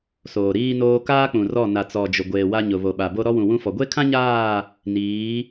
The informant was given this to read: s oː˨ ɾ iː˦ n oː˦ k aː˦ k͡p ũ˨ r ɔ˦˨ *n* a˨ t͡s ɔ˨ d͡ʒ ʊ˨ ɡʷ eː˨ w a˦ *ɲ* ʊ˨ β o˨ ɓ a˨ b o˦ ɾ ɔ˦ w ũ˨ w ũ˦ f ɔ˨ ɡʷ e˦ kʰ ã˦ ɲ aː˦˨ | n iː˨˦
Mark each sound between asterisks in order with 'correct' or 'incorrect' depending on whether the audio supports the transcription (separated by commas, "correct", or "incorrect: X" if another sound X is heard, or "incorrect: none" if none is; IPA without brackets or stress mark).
correct, correct